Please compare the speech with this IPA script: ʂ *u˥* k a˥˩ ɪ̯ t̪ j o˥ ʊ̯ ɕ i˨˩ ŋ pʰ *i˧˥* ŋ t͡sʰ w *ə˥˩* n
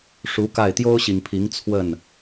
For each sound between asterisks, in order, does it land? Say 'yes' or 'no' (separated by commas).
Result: no, yes, yes